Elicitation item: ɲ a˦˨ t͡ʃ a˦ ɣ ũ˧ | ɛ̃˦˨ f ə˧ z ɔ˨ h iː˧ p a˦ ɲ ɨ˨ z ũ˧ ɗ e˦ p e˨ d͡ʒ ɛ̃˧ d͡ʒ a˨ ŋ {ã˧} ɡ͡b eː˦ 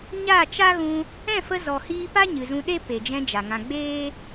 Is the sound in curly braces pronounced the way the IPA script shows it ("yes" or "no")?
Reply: yes